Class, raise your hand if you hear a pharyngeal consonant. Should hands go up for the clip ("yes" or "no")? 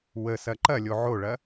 yes